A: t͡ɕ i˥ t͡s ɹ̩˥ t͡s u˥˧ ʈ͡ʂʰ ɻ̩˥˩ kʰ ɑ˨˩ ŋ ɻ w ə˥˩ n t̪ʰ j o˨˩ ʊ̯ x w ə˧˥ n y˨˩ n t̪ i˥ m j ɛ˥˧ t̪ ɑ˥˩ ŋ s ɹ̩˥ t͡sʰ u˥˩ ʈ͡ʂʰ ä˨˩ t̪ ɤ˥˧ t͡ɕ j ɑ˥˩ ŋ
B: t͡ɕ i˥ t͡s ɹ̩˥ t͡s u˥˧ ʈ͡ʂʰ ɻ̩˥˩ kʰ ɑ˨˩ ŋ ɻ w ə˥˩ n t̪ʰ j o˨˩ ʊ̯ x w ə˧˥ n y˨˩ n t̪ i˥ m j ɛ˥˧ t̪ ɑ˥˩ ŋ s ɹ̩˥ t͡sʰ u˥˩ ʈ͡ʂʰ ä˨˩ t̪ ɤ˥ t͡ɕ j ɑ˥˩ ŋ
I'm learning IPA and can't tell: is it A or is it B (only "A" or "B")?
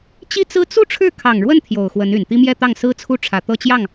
A